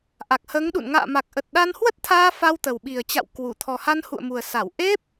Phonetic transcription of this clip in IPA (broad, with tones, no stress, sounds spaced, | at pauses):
ʔ a˨˩ k̚ h əː˨˦ ŋ ɗ ṵ˧˨ n ŋ a̰ː˧˨ m a˨˩ k̚ ʔ ə˨˩ t̚ ɗ a˧ n h w ə˦˥ t̚ t̪ʰ aː˧ f a˧ w t̪ ə˨˩ w ɓ i˨˩ ə̯ t͡ɕ a̰˧˨ w k w u˧˩ t̪ʰ ɔ˨˩ h a˧ n h ṵ˧˨ ə̯ m u˨˩ ə̯ s a˧˩ w ʔ e˦˥ p̚